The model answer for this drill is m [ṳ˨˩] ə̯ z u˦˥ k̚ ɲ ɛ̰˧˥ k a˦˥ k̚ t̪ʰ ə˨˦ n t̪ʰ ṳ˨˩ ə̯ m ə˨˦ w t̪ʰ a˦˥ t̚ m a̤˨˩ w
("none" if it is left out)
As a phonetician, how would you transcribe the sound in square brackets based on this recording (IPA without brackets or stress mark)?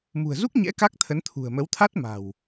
ṳ˨˩